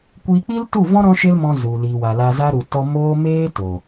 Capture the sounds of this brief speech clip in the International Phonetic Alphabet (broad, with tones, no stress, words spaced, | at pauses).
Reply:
kʷiː˧k͡pi˦ltu˦˨vɔ̃˦ ɾɔ̃˦ʃe˦lmɔ̃˧ zu˨li˨wa˨ la˧za˦ɾu˨ tɔ˧ moː˦meː˦ to˨